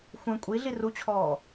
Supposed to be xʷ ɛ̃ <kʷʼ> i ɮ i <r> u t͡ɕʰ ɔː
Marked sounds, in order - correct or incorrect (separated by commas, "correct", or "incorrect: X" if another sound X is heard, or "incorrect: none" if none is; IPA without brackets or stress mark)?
correct, correct